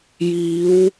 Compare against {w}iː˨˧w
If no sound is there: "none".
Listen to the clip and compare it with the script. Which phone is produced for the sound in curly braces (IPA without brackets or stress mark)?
j